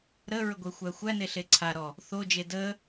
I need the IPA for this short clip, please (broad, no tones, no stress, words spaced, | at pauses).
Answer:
ɾəɹə ɡʷexʷæxʷæne ɬeǀʰaɾɔ | θod͡ʒe də